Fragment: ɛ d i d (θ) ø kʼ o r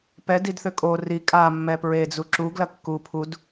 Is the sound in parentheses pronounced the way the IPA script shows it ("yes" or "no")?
yes